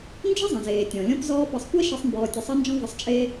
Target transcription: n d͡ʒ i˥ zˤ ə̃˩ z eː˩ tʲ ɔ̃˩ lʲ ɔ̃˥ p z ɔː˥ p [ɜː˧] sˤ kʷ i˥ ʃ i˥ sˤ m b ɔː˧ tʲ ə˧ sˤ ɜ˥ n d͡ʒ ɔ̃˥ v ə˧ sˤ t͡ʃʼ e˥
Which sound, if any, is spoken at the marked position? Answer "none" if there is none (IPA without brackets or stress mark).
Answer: ɜ˧